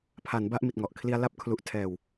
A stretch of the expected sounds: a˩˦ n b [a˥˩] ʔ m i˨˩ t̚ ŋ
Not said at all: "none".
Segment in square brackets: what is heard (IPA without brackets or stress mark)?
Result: a˥˩